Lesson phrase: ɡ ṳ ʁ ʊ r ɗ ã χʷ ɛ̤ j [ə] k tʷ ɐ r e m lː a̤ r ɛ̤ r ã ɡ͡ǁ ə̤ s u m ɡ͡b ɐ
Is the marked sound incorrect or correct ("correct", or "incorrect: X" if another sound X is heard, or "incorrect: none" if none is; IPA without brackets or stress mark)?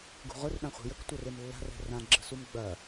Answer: correct